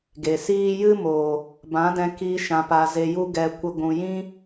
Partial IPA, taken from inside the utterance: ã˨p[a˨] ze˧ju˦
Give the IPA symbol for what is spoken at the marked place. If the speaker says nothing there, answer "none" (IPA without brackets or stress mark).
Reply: a˨